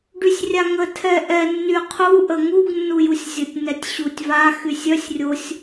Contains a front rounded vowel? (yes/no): yes